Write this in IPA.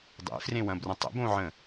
dˤḛfrẽwɐ̃brɐ̃ tˤə̰bõʕə̃

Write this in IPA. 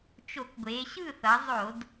t͡ʃo˧˩˧kɡʷe˩˧ ɕɯ˥˨θʌ˩˧zˤo˧˩˧d

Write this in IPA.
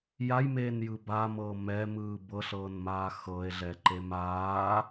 jajmeːnjɯ bamɤː mɛmɯː bɤɬɤːnmaː xɤe̯ɮɛǃem aː

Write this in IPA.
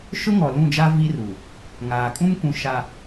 ʃʊ˦ŋɔ˨lũ˦˨d͡ʒa˦ vi˦ru˨ | ŋaː˨kʼũ˦mkʷũ˨ ʃa˨

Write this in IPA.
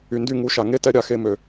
y˨ndy˧ŋu˨˦ʃa˨ ŋe˦tɛ˦ ɾʲa˧xe˧mø˨

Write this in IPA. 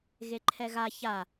ɣeǃʰɛɣa ça

